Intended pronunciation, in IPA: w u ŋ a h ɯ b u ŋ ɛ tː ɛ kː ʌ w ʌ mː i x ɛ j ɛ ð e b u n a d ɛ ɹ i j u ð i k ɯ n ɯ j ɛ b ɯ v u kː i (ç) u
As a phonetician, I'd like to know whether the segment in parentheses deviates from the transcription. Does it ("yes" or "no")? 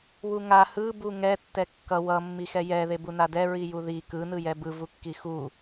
yes